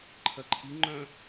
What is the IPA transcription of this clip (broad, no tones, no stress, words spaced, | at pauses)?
ǃʰɜǃʰi ŋ͡ǃœ̃